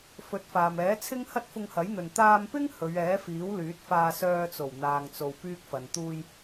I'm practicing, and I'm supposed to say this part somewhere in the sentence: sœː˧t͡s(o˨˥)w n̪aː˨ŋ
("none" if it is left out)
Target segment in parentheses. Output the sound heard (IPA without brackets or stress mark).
o˨˩